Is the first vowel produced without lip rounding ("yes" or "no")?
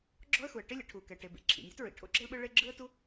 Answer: no